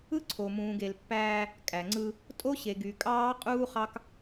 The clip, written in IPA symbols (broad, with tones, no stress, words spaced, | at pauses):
ɯ˦ǀʰo˨mũː˨ɡe˨l pːæː˦ | kʼæ˨ŋ͡ǀɯ˦ | tʼo˦ɕe˨ɡy˨ kʼɑː˦ qʼuː˦χɑ˦k